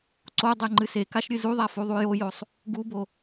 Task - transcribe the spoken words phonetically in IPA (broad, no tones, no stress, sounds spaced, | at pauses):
ǀ o dˤ e ŋ͡ǃ ɨ s e k a ʃ ɾʲ ɨ z u ðˤ a f u ðˤ u j o j o sˤ | ɡ u b o